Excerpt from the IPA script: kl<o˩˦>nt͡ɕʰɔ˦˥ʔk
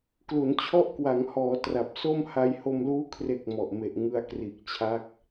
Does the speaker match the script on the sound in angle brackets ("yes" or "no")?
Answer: no